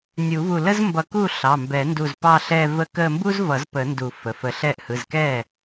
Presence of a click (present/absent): absent